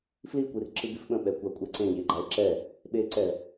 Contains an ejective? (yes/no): yes